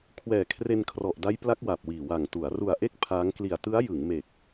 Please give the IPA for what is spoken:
kʰ w ɛː˨˩ kʰ r e˧ n kʰ r ɔ˨˩ ʔ d a˦˥ j p l a˦˥ k̚ w a˨˩ p̚ w iː˨˩ w a˨˩ ŋ t u˩˦ a̯ r u˨˩ a̯ ʔ e˥˩ k̚ pʰ aː˦˥ ŋ k l i˨˩ a̯ t ɯ˦˥ a̯ j ɯ˩˦ ŋ m e˨˩ k̚

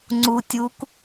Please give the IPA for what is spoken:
ŋ͡ǀ u tʲ u k

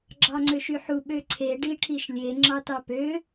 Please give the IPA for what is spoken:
ɡ͡ǁ ɑ ŋ͡ǀ ø ʃ y ħ u ɓ ø ǀʰ e ɖ i ʈʰ i ʃ lʲ e ŋ͡ǁ ɑ t ɑ p ø

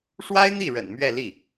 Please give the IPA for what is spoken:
ʂ w a˥ ɪ̯ n̪ i˥˩ ɻ ə̰˨˩ n m ɥ ɛ˥˧ l i˥˩

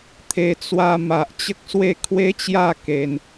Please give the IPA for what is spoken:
t̪ʰ e˧ t͡s w a˧ m a˨ ʔ t͡ɕ ə˦ k̚ s w e˥˧ kʰ w e˦ t͡ɕ j a˥˧ k e˧ n

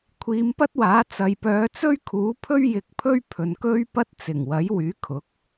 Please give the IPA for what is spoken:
kʷʰ iː˨˧ m p ɐ˥ t̚ w aː˨˥ t͡s ɐ˨ j p œː˨˧ t͡s ɵ˥ ɥ kʰ uː˨˥ pʰ ɵ˥ ɥ j ɪ˨˥ k̚ pʰ ɵ˥ ɥ pʰ ɵ˨ n k ɵ˥ ɥ p ɐ˥ t̚ t͡s ɪ˨˩ ŋ w ɐ˨˥ j w yː˨˥ kʰ ʊ˨˥ k̚

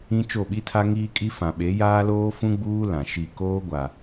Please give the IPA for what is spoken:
ĩ˦ t͡ʃ o˦˨ ɓ i˦ tʰ a˦ ŋ iː˦ kʼ i˦ f ã˨ ɓ e˨˦ j aː˦ l oː˦ f ũ˦ ɡ͡b uː˦ l ã˨ ʃ i˦˨ k oː˦ ɡʷ a˨

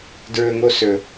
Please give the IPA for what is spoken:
d ɹ ɵ ŋ o s ɵ

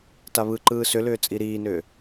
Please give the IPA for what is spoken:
t a β ɯ ǃ ɯː s ʏ l ʏː t͡sʼ i ɾ iː n ʏː

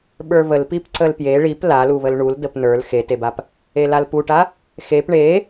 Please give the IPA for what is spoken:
ɓ ə˞ β ə l p i p ǀ ə l p j e ɭ i p l a l u β ə l ɳ u l d ə p n ə˞ l x e t e b a p | e l a l p u ʈ a | x e p ɳ e

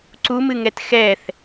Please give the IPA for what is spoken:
ǀ u m ɨ ŋ ɛ t x ɛ θ

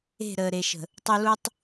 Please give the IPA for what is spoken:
e̤˦˨ ɾ əː˨ ɾ e˨ ʃ ə̤˨ | tˤ u˨ l u˨ tˤ

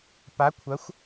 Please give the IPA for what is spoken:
p a˩˥ kʷʰ ɐ˩˥ xʷ

